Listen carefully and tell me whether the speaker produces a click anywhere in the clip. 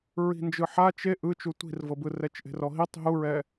no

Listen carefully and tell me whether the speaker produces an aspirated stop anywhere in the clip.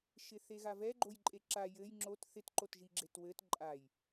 no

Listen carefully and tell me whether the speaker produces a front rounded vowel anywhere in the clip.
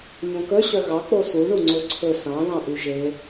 yes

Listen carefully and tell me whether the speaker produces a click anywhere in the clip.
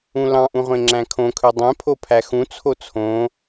yes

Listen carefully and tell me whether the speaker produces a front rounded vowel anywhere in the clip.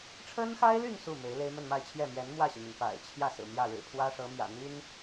yes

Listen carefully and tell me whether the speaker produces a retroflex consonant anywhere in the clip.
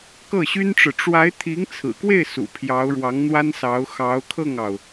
yes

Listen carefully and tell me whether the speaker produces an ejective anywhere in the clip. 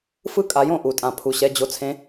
yes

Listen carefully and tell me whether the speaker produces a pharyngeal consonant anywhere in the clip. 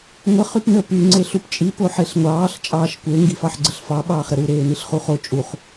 yes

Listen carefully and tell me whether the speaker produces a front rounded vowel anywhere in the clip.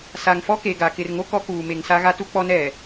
no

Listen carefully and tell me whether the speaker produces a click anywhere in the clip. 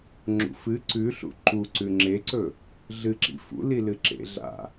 yes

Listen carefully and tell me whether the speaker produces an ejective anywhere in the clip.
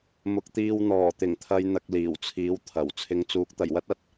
no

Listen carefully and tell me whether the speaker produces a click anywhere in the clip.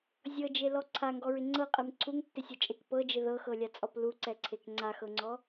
yes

